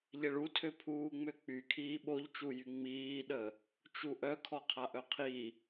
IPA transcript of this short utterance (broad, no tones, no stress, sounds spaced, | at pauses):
ʎ ɛ ɭ u tʰ ø pʰ uː ŋ͡m ø k͡p y kʰ iː ɓ o ʎ t͡ʃ u j y ŋ͡m iː ɗ ə | t͡ʃ u ʔ œ kʰ ɔ qʰ a ʔ œ qʰ i